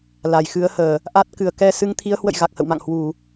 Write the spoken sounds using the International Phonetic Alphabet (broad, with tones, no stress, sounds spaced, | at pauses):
l a˨˩ j x ɨ˨˦ ə̯ h əː˨˩ | ʔ a˦˥ t̚ k ɨ˨˩ ə̯ k ɛ˧ s ɨ˨˦ ŋ t̪ʰ i˨˦ ə̯ h w ə̰˧˨ j ɣ a˨˩ k̚ h ə̰˧˨ w m a̰˧˨ ŋ h w u˧˩˨